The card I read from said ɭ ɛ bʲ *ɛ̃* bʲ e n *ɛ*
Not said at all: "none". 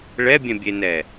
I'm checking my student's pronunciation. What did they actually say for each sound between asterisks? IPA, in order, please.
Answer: ɛ̃, ɛ

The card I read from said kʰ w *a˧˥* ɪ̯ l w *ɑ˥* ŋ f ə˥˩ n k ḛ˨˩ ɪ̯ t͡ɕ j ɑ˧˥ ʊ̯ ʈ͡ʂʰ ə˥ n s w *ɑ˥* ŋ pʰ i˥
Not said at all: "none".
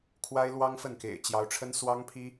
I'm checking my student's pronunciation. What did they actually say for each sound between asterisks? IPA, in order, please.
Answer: a˥, ɑ˥, ɑ˥

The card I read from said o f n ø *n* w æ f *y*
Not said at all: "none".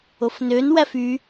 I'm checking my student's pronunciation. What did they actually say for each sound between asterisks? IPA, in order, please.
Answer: n, y

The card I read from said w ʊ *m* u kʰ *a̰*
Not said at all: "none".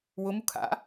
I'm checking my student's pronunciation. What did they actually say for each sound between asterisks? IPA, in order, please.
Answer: m, a̰

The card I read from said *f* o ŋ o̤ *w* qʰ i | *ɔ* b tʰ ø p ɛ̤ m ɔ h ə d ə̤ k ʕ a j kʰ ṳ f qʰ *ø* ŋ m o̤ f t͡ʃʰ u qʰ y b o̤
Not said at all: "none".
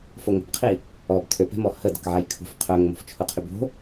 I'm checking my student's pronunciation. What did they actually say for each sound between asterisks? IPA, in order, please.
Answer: f, b, ɔ, œ

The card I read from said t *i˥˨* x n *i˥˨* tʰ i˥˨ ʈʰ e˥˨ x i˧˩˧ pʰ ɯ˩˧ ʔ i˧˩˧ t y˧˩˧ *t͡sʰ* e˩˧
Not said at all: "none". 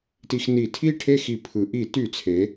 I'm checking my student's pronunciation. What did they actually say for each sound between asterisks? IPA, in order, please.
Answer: i˧˩˧, i˧˩˧, t͡sʰ

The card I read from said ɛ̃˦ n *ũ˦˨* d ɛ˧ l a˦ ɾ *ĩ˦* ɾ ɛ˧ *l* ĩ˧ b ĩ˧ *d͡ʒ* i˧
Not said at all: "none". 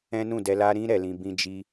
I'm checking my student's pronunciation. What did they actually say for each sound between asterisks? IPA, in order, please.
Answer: ũ˦˨, ĩ˦, l, d͡ʒ

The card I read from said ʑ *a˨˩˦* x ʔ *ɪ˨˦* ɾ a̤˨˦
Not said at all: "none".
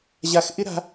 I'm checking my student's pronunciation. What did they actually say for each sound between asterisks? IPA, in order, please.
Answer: a˥˧, ɪ˥

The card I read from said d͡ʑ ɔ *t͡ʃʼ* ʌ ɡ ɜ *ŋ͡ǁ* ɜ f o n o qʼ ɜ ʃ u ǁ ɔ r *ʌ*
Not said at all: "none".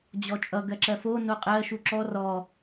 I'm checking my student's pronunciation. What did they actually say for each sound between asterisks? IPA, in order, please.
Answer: t͡ʃʼ, ǁ, ɔ

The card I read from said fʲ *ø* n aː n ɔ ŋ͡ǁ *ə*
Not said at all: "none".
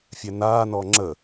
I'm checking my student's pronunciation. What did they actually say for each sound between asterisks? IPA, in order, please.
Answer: ɛ, ə

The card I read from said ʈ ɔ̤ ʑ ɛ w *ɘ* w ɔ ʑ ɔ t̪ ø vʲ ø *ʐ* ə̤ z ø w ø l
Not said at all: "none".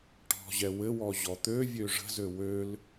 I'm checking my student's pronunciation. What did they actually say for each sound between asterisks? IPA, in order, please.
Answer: ɘ, ʐ

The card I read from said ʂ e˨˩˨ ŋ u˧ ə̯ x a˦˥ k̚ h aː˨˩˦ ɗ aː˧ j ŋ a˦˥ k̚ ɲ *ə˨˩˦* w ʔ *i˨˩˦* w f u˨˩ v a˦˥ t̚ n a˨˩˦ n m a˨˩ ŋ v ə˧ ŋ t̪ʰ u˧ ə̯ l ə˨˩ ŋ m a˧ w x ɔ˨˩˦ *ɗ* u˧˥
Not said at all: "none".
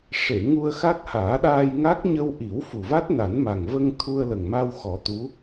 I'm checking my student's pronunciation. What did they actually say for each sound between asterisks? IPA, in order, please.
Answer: ə˧, i˨˩˦, t̪

